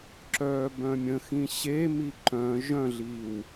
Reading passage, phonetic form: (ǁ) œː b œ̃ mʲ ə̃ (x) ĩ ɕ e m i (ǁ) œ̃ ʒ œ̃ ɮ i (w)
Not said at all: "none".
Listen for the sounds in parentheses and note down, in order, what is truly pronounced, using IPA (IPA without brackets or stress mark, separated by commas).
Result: ǁ, x, ǃ, w